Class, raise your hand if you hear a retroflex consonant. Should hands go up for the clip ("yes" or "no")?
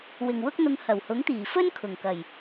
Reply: no